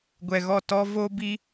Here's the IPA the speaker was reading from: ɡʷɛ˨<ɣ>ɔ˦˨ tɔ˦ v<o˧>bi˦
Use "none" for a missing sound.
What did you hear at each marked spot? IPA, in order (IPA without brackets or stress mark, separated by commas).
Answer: ɣ, o˦